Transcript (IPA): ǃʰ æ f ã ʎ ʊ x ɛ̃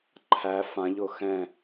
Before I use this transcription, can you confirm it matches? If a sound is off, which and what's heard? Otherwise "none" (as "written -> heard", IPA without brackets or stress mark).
ʊ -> ʊː